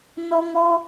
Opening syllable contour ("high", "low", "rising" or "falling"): high